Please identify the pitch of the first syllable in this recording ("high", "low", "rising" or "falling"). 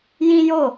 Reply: high